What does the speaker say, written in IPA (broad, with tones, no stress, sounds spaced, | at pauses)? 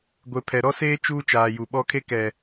ɡʷ e˨ pʰ ɛ˨ ɾ ɔ˦ s eː˦ t͡ʃ uː˦ t͡ʃ aː˨ j u˨ ɓ ɔ˦ kʰ e˦ k ɛ˨